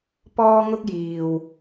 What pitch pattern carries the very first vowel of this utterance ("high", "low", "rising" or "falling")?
high